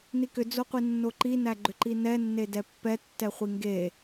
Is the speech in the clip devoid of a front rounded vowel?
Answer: no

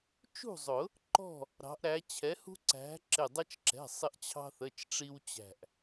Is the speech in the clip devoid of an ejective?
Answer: yes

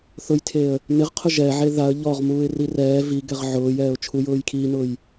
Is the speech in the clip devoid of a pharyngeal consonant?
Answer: no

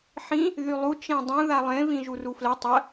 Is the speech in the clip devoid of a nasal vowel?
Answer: no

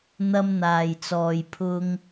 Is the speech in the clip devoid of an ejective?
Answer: yes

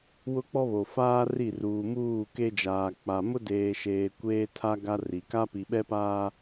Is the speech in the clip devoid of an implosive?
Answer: no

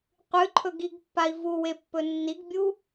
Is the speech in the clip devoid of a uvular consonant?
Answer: no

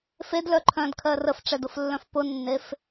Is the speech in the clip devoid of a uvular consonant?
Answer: yes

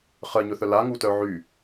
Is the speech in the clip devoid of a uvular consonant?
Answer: no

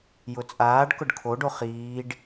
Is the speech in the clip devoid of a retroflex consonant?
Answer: no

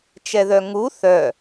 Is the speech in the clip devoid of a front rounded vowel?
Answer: no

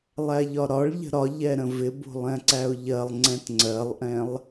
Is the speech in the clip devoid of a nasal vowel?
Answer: no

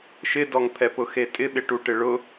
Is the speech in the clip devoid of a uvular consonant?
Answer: yes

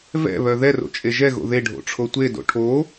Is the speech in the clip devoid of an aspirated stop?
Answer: no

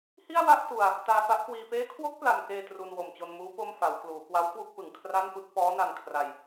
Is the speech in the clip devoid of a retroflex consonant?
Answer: yes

